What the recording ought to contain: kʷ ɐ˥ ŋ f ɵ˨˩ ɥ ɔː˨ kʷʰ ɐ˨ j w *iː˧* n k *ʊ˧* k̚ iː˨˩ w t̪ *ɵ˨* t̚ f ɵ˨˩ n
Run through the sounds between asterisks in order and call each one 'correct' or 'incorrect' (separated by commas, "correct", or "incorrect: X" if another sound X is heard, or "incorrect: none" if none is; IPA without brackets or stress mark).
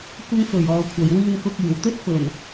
correct, correct, incorrect: ɵ˥